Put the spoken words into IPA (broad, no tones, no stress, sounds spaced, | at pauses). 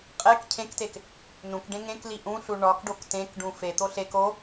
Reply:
qʼ e k cʰ ẽ k t e k | n ũ k ɖ ẽ ŋ ẽ k l i ʔ ũ ɬ u ɳ ɒ k ɖ o k t ẽ k ɖ ũ f e t̪ o ɬ e k o